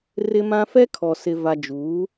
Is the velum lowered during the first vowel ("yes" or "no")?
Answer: no